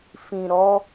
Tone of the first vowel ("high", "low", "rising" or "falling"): low